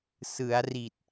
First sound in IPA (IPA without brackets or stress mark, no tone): s